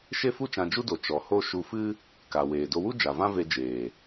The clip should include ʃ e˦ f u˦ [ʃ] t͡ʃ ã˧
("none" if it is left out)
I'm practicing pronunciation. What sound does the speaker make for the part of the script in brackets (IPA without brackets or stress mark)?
none